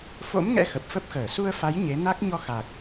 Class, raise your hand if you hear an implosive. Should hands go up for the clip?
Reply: no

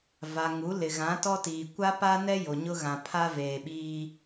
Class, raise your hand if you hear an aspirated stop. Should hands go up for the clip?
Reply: yes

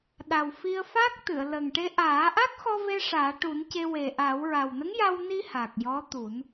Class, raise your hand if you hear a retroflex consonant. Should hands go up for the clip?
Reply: yes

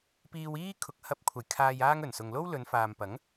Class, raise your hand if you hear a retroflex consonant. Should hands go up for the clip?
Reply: no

